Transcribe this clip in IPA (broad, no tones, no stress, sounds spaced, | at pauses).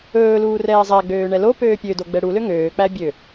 ɵː l uː r ɛː zˤ æ ɡ͡b øː ɳ ɛ l o p øː pʲ ø d o ɡ͡b ɛ ɽ u l ø ŋ øː k͡p æ bʲ ø